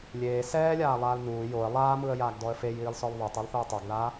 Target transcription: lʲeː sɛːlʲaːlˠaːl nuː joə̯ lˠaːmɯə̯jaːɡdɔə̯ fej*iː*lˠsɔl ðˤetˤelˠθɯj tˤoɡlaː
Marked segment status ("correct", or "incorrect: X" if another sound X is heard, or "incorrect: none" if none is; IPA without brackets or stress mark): correct